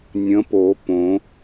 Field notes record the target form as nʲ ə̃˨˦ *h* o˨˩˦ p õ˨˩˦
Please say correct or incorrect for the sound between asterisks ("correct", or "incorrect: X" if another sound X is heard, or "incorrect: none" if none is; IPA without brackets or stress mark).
incorrect: p